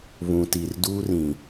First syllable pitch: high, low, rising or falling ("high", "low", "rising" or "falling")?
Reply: low